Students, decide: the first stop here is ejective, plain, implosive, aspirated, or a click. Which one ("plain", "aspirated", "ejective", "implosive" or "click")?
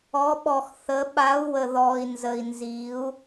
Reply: implosive